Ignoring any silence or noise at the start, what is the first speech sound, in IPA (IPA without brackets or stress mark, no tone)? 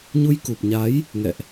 ɲ